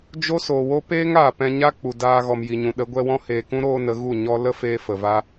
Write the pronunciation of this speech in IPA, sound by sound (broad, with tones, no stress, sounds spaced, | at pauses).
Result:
d͡ʒ o˦ s oː˨ w o˦ p eː˦ ŋ aː˨ p ɛ̃˧ ɲ a˦ k͡p u˨ d aː˧ ɣ ɔ˨ m j i˨ ɲ ũ˨ ɗ ə˨˦ ɡʷ ɛ˧ w ɔ̃˦ h eː˨ k ũ˦ ɾ oː˦ n ə˨˦ ɣ u˦˨ ɲ ɔ˦ l ə˦ f eː˧ f ə˨ v a˦